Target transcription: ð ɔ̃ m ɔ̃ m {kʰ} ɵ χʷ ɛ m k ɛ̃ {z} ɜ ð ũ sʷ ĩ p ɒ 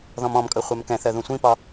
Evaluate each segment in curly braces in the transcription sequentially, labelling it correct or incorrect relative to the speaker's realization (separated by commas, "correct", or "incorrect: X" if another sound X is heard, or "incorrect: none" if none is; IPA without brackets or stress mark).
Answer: incorrect: kʼ, incorrect: θ